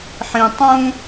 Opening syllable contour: low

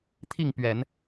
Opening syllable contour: falling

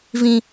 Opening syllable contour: low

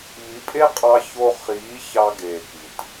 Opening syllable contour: rising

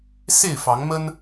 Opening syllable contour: falling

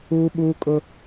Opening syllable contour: high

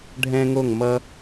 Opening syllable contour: high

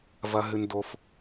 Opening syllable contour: high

